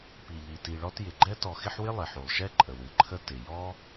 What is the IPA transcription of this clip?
p i˩ ʎ i˩ t i˨ ɭ ɔ˦ t j ɪ˩ ɡ͡ǃ ɛ˥ t ɔ˨ x ɪ˦ ħ w ɪ˥ lˠ ɪ˩ ħ u˩ lˠ ʃ ɛ˥ ǃʼ ə˩ w ɨ˩ ǃʰ ə˦ t ɪ˩ j ɔ˥

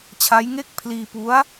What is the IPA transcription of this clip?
t͡ɕʰ a˦˥ j ŋ e˥˩ k̚ pʰ l iː˧ p u˦˥ a̯

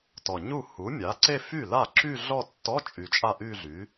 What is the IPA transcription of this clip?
t ɔ˨˩ ɲ u˥˩ h u˩˥ mʲ a˩˥ ǀ e˥˧ f y˥˩ l a˥˩ ǁ y˥˧ ɮ ɔ˥˧ tː ɔ˧˥˧ t͡ʃʼ y˨˩ t͡ʃʼ a˥˩ ʔ y˥˧ ɮ y˩˥

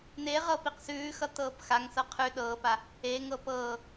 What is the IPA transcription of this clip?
n e ʁ ɤ p i q s ʉː x ʌ t ɤː p x a ŋ s ɤ qʰ ʉ ɗ ɤː p a | e ŋ ɤ p ɤː

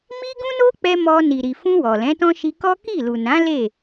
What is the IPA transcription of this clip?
m i˦ ɡ ũ˦ n o˦ k͡p ɛ˧ m ɔ˧ n i˨ ɾ i˨ f ũ˧ w ɔ˨ l ɛ̃˨˦ t ɔ̃˦ ʃ i˧ k ɔ˦ k i˦˨ l u˨ n ã˨˦ l e˦˨

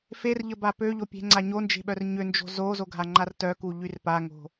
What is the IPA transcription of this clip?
f e r ʎ ə b a p ø ʎ o pʲ e̤ ŋ͡ǀ a ɲ o n d͡ʒ e̤ ɓ œ r ɲ ø n d͡ʒ o̤ z o z o ɡʱ a ŋ͡ǃ a r t œ k u ʎ y r p a ŋ o̤

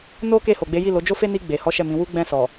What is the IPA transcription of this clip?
n o˦ k e˦˨ h o˨ ɡ͡b e˨˦ j i˦˨ l o˨˦ d͡ʒ o˦ f e˦ n i˧ ɡ͡b e˨ h ɔ˨˦ ʃ ɛ˦˨ m ĩ˨˦ w u˦ ɡ͡b ɛ̃˦˨ s ɔ˨

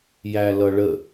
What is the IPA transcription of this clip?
j æ l ʌ ɭ ə

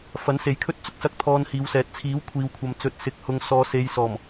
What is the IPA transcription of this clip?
f ɐ˨˥ n s e˨˧ j kʰ ɵ˥ t̚ t͡s ʊ˥ k̚ s ɐ˧ k̚ t̪ʰ ɔː˧ n h iː˨˧ w s ɛː˨ t̚ t͡sʰ iː˨˥ w kʷʰ iː˨ w kʷʰ ɐ˨ m t͡s ɵ˨˥ t̚ s ɪ˨ k̚ h ʊ˨ ŋ s ɔː˨˧ s e˨˧ j s ɔː˨˩ m

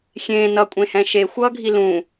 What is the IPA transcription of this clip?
xʲ ẽː n ʌ kʷʼ ẽ h ɛ̃ ʃ e xʷ ʌː ɡʱ i l ũ

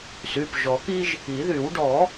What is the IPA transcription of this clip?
s y˩˧˩ p ʒ ɔ˨˩˦ k i˥ ʒ | i˨˩˦ ð y˨˩˦ w ɖ ɔ˨˩˦

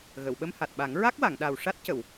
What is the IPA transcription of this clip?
ɣ ə˨˩˨ w ɓ ə˧ m h a˨˩ t̚ ɓ a˨˩˦ ŋ ɹ a˦˥ k̚ w a˨˩˨ ŋ ɗ a˨˩ w ʂ a˦˥ t̚ c ə˨˩˨ w

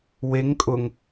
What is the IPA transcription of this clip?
w e ŋ kʼ ʊ ŋ

